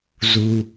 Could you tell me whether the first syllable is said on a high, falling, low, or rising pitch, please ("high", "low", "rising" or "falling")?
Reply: low